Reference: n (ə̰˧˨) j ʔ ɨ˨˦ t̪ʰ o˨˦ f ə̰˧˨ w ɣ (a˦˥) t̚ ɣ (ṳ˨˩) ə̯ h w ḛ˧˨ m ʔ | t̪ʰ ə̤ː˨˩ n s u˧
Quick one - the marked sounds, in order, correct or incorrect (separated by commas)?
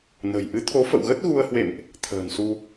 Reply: incorrect, incorrect, incorrect